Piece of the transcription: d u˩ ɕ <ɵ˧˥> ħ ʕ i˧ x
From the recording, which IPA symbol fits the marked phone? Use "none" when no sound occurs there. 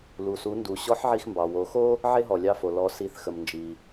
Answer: ɔ˧˥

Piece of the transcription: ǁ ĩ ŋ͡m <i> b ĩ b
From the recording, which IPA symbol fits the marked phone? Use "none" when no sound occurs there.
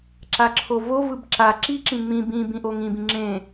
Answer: ĩ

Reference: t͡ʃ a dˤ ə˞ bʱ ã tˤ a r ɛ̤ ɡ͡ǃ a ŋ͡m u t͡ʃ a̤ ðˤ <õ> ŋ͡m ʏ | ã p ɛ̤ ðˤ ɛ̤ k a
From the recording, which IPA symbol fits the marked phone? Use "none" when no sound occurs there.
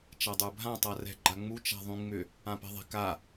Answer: ũ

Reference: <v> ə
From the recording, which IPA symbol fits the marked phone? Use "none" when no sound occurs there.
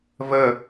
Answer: v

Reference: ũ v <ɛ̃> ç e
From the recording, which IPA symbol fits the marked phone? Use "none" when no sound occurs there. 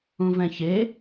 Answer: ɛ̃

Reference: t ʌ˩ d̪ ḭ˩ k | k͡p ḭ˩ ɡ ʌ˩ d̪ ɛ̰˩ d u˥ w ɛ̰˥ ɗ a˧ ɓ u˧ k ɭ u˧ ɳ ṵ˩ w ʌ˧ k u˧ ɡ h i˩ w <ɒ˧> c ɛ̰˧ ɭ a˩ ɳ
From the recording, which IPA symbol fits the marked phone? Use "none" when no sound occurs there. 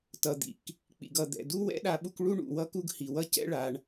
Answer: ʌ˧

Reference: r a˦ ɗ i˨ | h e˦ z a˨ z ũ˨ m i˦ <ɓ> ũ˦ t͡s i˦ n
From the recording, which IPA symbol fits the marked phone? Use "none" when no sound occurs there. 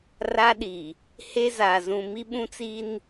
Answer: ɓ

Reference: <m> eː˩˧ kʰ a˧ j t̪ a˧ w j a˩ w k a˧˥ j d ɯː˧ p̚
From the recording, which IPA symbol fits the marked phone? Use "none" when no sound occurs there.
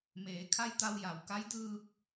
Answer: m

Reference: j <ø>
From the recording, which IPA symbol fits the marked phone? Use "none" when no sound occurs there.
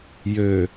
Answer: ø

